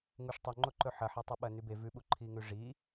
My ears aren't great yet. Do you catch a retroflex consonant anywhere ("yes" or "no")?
yes